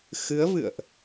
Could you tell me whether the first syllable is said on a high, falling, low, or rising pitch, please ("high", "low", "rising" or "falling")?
rising